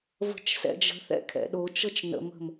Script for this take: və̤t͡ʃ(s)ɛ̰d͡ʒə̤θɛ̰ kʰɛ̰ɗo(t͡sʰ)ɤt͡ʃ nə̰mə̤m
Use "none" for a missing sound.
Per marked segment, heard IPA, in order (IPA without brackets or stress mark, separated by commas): s, t͡ʃ